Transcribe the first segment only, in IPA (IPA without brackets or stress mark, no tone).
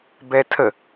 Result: b